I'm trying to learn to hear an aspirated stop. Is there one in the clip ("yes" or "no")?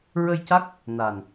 no